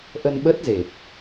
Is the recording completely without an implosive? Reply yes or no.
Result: no